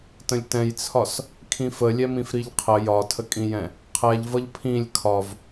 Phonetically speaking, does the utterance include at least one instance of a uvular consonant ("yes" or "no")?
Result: yes